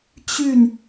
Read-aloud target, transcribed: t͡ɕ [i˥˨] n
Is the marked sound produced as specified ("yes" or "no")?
no